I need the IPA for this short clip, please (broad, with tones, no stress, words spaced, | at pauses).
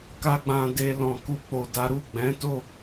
ka˦ɡ͡bã˧ de˧ lɔ̃˨ku˧k͡po˨da˨˦ ɾu˦˨ ɡ͡bɛ̃˨˦to˦˨